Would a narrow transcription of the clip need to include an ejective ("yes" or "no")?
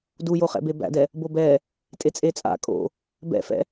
yes